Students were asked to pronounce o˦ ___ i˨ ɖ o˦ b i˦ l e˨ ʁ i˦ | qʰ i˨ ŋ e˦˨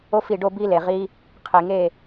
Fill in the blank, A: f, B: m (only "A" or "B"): A